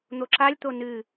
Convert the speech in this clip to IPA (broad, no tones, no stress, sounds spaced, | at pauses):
n̪ o ǁ a lʲ t̪ o n ɨ